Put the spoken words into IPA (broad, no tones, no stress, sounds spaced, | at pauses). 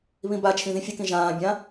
β ĩ b a t͡ʃʰ ĩ ð ĩ fʲ ɨ k ĩ ʒ ãː bʲ ã